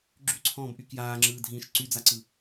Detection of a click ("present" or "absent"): present